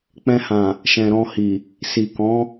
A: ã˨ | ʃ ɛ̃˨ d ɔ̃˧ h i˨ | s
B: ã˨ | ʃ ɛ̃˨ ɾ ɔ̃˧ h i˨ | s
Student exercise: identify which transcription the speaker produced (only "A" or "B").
B